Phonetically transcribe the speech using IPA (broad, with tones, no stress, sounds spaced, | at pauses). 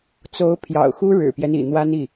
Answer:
t͡s o˧˥ ʊ̯ pʰ j ɑ̰˨˩ ʊ̯ x u˥ ɻ ɻ̩˨˩ p j ɛ˦ n ḭ˨˩ n̪ w a˥ n i˥˩